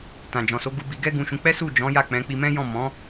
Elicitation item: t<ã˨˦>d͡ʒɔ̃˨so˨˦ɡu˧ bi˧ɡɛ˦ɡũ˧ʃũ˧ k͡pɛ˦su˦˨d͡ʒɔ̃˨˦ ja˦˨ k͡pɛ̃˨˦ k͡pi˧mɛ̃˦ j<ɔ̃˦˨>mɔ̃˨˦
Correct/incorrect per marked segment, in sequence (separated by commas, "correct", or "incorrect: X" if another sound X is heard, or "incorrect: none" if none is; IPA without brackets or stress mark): incorrect: ã˨, correct